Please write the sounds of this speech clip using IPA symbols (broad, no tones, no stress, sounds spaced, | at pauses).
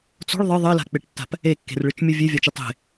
t͡s o̤ ɭ ðˤ ɨ ðˤ ɘ l a̤ k͡p e ʈ tː a̤ p | e kː e̤ r ɭ ɨ t͡ʃ mʲ ɘ vʲ e vʲ a t͡ʃ i tˤ e̤